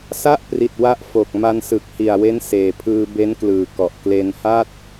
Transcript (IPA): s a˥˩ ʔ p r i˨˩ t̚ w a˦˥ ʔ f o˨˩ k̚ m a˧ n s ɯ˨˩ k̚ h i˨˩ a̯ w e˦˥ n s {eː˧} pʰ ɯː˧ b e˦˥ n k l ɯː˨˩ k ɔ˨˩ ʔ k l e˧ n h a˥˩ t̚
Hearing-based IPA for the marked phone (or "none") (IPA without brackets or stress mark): eː˨˩